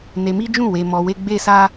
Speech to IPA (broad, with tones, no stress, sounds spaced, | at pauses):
n e˧ m i˦ d͡ʒ ũ˦˨ w e˧ m ɔ˧ w e˦ ɡ͡b e˦ s a˦